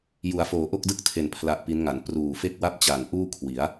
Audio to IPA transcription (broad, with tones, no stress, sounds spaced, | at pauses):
j u˩˦ a̯ f oː˩˦ ʔ o˥˩ k̚ d ɯ˥˩ k̚ tʰ e˨˩ n pʰ l a˦˥ ʔ p i˦˥ n ŋ a˩˦ n p r uː˨˩ f e˥˩ k̚ w a˥˩ p̚ t͡ɕ a˨˩ n ʔ uː˥˩ kʰ w i˩˦ a̯